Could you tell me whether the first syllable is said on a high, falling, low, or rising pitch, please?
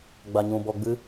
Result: low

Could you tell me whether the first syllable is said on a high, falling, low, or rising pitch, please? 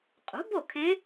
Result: rising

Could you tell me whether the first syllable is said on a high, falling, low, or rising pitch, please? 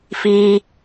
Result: high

